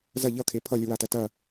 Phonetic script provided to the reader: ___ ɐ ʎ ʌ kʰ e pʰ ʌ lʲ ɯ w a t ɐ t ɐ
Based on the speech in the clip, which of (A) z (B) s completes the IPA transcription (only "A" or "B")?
A